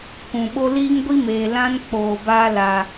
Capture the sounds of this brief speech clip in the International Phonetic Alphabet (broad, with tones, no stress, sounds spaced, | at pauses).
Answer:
k ũ˨ ɓ o˦ l iː˦ ŋ ɡʷ i˦ m eː˨ l ã˦ n k͡p oː˨ b aː˦ l a˨